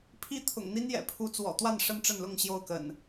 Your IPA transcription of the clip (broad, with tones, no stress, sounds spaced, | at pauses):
pʰ i˦ t̪ʰ ʊ̰˨˩ ŋ n̪ i˦ n j ɛ̰˨˩ pʰ u˨˦ t͡s w ɔ̰˨˩ t̪ w a˥˨ n ʂ ə˦ n ʈ͡ʂ ə˥˨ n l ʊ˥˨ ŋ ɕ j o˥˨ ʊ̯ k ə̰˨˩ n